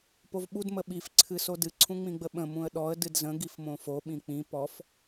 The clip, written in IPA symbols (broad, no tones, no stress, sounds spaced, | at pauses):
p o v ɓ u d m ə ɓ i f ǀʰ ɨ s o d ɨ ǀʰ ũ ŋ͡m ĩ ɡ͡b ə ɓ ə̃ m ũ ə̯ ɗ ɔ ə̯ d ɨ d z ə̃ ɡ i f m õ f o ɓ ĩ k͡p ĩ p ɔ f